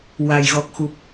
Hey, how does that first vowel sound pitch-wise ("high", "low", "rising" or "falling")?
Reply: low